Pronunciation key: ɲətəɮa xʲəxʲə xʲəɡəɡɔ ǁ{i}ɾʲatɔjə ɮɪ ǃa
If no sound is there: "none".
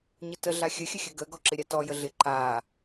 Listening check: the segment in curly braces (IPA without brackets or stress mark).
ɪ